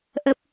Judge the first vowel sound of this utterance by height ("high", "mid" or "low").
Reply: mid